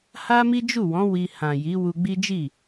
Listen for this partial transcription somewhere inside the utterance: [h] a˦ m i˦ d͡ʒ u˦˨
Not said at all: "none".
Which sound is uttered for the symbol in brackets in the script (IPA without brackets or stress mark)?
h